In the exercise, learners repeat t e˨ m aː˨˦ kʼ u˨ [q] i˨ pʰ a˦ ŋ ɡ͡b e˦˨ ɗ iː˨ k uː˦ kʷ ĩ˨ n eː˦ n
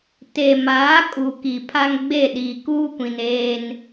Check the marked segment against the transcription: incorrect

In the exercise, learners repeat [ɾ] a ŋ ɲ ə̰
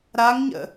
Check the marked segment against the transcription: correct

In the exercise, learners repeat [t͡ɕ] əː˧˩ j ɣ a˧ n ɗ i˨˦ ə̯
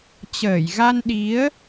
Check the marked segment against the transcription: correct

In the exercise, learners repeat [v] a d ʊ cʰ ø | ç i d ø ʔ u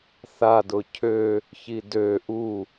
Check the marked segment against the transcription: incorrect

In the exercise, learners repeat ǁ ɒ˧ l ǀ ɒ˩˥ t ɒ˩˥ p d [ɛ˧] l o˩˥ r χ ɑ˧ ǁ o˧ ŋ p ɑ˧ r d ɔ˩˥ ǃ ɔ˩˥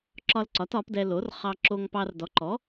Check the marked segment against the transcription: correct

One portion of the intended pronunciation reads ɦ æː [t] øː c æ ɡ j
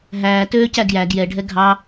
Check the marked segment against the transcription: correct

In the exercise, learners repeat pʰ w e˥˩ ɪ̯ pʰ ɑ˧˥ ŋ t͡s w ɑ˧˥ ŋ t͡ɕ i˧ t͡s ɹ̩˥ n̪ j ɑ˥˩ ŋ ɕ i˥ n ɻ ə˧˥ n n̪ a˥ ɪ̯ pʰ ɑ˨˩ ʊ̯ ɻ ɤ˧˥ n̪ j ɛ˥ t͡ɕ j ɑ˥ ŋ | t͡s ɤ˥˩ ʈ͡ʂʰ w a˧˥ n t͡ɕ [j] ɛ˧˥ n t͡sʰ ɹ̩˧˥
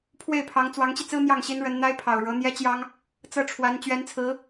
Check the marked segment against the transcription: incorrect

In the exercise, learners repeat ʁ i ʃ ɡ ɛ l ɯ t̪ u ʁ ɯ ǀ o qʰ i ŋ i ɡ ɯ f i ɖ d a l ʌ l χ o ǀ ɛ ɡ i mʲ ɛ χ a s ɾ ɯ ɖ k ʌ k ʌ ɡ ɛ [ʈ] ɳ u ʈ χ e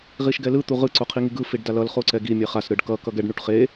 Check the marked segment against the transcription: incorrect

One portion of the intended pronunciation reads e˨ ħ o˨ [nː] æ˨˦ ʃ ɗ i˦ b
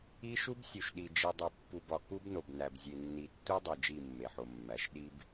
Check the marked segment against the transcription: incorrect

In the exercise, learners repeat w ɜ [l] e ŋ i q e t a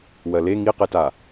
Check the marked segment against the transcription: correct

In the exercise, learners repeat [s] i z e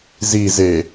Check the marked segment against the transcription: incorrect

